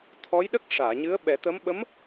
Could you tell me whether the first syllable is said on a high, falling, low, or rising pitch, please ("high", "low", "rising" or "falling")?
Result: rising